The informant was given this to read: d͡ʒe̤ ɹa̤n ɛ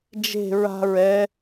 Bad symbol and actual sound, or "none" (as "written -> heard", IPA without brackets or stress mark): n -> ɹ